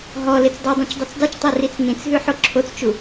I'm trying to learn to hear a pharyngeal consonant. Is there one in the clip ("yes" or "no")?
yes